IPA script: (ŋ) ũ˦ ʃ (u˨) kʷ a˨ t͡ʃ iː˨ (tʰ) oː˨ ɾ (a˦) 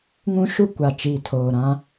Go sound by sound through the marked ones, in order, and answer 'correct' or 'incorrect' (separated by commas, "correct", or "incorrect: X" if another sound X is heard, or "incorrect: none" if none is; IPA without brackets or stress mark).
correct, incorrect: u˦, correct, incorrect: ã˦